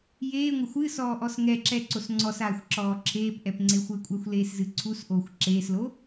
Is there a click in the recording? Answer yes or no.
yes